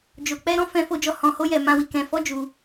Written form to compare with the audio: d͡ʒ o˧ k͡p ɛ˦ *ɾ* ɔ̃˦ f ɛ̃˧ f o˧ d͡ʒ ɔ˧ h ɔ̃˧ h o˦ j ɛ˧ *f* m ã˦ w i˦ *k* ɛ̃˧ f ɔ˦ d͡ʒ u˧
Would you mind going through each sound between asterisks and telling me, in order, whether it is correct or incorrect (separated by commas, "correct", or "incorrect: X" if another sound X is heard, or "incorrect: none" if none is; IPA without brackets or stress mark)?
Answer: correct, incorrect: none, correct